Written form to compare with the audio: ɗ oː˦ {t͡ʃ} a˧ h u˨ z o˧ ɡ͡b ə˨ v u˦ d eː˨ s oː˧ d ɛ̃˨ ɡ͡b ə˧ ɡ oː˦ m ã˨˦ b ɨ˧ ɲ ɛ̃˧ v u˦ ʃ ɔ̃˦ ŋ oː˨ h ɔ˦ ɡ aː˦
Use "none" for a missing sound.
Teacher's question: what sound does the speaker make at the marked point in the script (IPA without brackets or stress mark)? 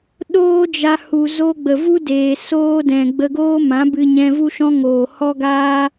d͡ʒ